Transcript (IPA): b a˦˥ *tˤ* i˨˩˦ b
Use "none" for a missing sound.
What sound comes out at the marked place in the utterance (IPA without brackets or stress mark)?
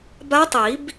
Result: tˤ